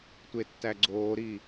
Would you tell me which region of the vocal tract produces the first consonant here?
tongue tip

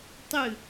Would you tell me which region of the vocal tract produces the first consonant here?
tongue tip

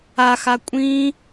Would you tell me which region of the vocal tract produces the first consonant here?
velum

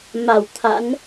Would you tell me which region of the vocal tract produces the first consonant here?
lips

